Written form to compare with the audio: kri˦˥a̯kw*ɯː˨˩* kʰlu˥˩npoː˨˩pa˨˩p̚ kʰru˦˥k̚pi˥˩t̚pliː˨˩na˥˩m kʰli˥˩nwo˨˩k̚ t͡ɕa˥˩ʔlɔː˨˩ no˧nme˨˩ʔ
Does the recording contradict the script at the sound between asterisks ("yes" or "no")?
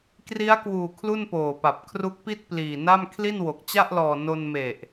yes